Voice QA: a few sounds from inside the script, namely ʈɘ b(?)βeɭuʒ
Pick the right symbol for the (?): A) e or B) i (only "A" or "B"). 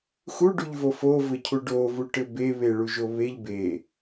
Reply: A